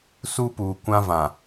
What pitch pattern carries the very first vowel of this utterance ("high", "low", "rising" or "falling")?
high